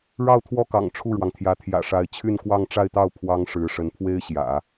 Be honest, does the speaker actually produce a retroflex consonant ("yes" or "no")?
yes